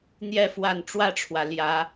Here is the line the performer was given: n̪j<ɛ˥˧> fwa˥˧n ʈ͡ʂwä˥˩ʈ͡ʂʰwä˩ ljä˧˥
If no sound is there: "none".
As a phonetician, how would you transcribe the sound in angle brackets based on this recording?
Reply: ɛ˥˧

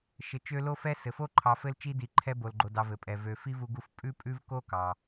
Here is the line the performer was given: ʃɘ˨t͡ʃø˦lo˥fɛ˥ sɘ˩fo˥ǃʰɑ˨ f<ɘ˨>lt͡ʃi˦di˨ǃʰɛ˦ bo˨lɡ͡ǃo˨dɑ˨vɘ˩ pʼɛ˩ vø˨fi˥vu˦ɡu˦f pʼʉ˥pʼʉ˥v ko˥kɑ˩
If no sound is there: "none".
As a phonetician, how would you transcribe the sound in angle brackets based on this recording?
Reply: ɘ˦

